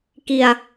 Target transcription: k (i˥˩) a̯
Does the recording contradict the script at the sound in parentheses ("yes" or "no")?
yes